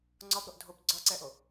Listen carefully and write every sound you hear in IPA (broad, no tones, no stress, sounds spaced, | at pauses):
ŋ͡ǀ ɒ b ɾ o ʔ dʱ o b ɡ͡ǀ ɒ ǀ ɛ ʔ o